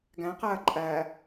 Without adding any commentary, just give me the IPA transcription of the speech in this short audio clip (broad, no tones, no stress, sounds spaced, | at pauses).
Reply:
ɡ æ̃ q æ ɐ̯ ǃʼ æ